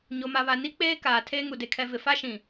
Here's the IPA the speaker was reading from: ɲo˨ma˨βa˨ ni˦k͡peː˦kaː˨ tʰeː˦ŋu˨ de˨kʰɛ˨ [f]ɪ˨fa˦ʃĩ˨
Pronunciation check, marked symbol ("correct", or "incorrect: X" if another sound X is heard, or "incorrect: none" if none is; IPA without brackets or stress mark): incorrect: v